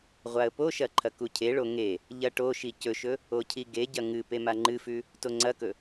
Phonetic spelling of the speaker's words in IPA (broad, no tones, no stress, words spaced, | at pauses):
ʁʷaə̯poʃɐ ǃʰɐkucʰeɭo ŋe | ʎɐʈoʃi cɵʃɵ | ocʰiɡeɟɐ ŋɨ pemaŋ͡ǃɨfʉ | toŋ͡ǀɐkɵ